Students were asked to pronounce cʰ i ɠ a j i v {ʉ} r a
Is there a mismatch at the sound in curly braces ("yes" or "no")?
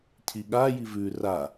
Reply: no